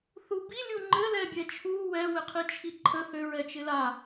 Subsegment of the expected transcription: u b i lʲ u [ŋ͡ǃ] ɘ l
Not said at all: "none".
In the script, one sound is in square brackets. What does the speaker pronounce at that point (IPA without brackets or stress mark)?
ŋ͡ǃ